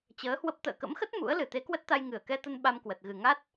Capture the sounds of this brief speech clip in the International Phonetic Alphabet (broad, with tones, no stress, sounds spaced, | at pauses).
t͡ɕ əː˨˦ h w ə˦˥ p̚ t̪ ə̰ː˧˨ k ə̰˧˥ m x ə˦˥ t̚ m ṵ˧˥ ə̯ l ɨ˨˩ t̪ e˨˦ k w ə˦˥ t̚ t̪ a˧ j ŋ ɨ˧˩ ə̯ k ɛ˧ t̪ ə˧ n ɓ a˧ m k w ə˨˩ t̚ ɣ ɨ˨˩ ŋ a˦˥ t̚